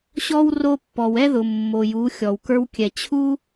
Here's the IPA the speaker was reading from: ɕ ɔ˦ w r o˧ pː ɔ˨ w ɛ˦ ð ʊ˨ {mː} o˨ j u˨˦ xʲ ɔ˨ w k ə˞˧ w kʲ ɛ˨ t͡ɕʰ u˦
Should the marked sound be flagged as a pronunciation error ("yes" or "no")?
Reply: no